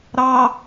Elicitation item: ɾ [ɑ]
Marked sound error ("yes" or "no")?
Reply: no